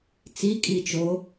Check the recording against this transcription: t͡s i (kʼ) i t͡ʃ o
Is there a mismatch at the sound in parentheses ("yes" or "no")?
no